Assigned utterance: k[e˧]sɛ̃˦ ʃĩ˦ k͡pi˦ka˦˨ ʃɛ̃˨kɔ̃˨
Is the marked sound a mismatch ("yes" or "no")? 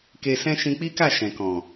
no